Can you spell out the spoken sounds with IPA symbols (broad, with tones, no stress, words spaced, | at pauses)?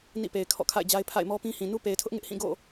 nḭ˦˨pe˨ɪ̯ kʰɔ̰˦˨kʰa̰˦˨ɪ̯d͡ʑa˦ɪ̯pʰa̰˦˨ɪ̯ mɔ˦pĩ˦hĩ˨ nu˦pe˨ɪ̯tʰʊ˦ʔ ŋɪ˦ʔhĩ˦˨ ɡo̰˦˨